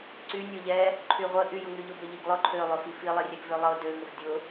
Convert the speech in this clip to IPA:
ǀ y nʲ ʊ ʎ ɛ | ǃʰ y ʁʷ ə ʔ y j ʊ ŋ y ʎ ʊ b ø ʎ i ɡ lˠ ʊ ǃʰ ø lˠ ʊ f i f i lˠ i rʲ ɛ ɡ v ø lˠ ɤ d ø ŋ ə f dʲ ʊ

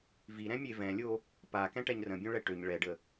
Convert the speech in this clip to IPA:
v i ɾ ɛ̃ mʲ e v ɛ̃ lʲ o | p a k ɛ̃ ʈ ɛ ɲ r ə̃ bʲ õ ɭ ɛ ʈ ø ɲ ɭ ɛ ɖ ə

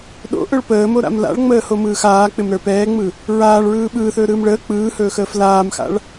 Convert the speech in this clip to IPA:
ɗ o̰ ʔ ɵ ɭ p əː m o ɾ a̰ m l a̰ ɭ ŋ͡m əː h o m ɯː x aː k͡p ɪ m ɾ ə˞ p ɛː ŋ͡m ɯ | ɹ aː ɭ ɹ ɯː ɓ ɯː θ ɵː ɾ ɯː m ɭ əː k͡p ɯː h ɵː x əː f l aː m x a̰ ɭ

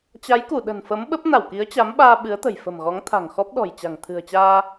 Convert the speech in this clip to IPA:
t͡ɕ a˨˦ j k u˧˩ ɗ ə̤˨˩ n f ə˨˦ m ɓ ə˦˥ p̚ n a˧˩ w k i˨˦ ə̯ t͡ɕ a˨˦ m ɓ aː˧ ɓ ɨ˨˦ ə̯ t̪ ə̤˨˩ j f ə̤˨˩ m ɣ ɔ˨˦ ŋ t̪ʰ a̤˨˩ ŋ x ɔ˦˥ p̚ ɗ ɔ̤˨˩ j t͡ɕ a̤˨˩ ŋ t̪ʰ ɨ̤˨˩ ə̯ t͡ɕ aː˧

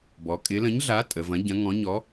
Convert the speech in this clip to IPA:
b ɔ˩˧ kʼ ɪ˨˥ l ə̃˨˥ ɲ ɮ a˨˥ tʼ ə˩˧ v ɐ̃˨˥ ɟ ɐ̃˨˥ ŋ ɔ̃˨˥ ɲ ɔ˨˥

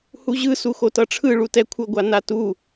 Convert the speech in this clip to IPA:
h u ʑ ɯ s u x o t ʌ ʈ͡ʂʰ ɯ ɭ u t ɛ kʷʰ ʌ ɡʷ a n a t u

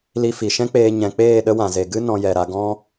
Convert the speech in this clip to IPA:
l i˧ f i˨ ʃ ɛ̃˦ k͡p eː˧ ɲ ɛ̃˨ k͡p eː˦˨ ɗ ə˦ w ã˨ z e˨ ɡ ɨ˦ n ɔ̃˧ j ɛ˨ ɾ a˧ ɡ ɔ̃˦

